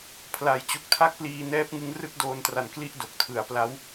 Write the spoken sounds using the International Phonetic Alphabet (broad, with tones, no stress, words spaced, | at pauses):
pʰla˩˦jt͡ɕu˨˩k̚ tʰa˥˩k̚pliː˧nɛː˦˥p̚ŋɯ˦˥ŋ rɯ˥˩k̚doː˧ntra˨˩n kli˥˩ʔdo˨˩k̚ tʰɯ˩˦a̯pla˦˥w